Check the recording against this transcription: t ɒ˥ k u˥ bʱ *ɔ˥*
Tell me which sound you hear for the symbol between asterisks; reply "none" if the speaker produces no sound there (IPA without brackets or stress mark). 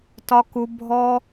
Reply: ɔ˥